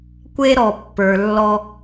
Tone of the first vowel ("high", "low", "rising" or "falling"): high